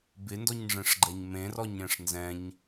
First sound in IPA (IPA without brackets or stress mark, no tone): b